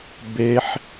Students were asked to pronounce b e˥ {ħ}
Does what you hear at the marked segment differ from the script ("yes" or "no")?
no